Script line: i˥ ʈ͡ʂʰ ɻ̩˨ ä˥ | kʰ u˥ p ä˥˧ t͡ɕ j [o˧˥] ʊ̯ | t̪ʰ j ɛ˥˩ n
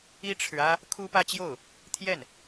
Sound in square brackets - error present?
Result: yes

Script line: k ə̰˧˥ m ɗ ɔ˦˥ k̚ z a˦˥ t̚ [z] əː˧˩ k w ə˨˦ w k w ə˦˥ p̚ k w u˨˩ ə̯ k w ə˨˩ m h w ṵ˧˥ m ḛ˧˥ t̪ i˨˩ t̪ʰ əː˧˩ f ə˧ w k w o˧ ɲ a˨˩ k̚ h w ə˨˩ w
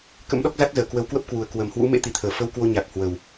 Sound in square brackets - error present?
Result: no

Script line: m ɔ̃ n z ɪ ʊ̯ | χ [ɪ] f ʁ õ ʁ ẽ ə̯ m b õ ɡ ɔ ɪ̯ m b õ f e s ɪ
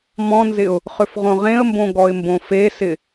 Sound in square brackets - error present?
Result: yes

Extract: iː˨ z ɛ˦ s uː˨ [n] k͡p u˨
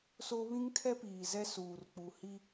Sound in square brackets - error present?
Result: yes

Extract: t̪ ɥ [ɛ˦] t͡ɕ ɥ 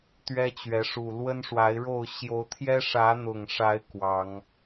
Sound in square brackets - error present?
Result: no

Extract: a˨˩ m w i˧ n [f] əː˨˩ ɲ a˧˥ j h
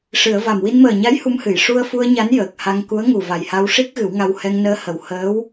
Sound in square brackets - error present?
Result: yes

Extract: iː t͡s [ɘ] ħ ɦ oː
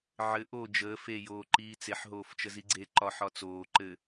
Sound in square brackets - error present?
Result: yes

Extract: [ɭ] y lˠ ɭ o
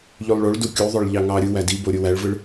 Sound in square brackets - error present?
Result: yes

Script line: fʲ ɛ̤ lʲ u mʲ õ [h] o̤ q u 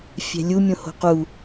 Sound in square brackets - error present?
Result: no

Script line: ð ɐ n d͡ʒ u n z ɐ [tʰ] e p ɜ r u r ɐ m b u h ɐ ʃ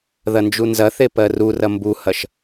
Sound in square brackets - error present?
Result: yes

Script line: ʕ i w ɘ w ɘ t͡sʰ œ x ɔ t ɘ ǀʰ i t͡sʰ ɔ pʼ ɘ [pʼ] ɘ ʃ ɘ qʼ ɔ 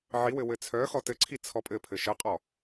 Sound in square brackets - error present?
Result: yes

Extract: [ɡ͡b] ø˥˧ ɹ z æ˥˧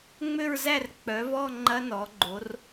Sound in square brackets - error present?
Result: yes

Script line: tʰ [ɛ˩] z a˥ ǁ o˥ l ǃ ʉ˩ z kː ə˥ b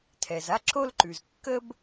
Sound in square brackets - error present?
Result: no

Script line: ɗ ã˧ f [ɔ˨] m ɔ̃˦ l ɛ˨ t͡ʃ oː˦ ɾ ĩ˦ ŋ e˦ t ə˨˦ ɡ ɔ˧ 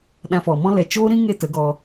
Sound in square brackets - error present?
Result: no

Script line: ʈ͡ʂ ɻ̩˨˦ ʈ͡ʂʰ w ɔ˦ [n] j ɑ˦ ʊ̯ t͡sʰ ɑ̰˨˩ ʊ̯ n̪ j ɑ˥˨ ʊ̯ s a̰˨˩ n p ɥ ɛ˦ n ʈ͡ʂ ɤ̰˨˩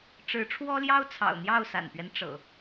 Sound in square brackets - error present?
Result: yes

